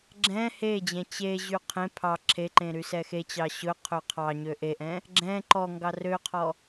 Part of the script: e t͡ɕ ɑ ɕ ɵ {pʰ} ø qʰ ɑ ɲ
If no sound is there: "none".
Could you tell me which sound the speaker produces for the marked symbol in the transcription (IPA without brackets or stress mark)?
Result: qʰ